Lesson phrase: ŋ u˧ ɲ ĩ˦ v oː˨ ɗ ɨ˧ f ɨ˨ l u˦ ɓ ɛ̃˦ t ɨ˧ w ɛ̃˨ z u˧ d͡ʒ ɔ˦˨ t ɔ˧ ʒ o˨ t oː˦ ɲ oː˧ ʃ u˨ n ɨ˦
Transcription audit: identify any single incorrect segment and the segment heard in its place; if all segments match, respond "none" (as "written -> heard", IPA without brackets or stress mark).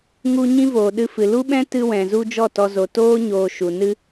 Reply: ʒ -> z